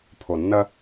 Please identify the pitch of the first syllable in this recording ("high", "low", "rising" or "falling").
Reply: low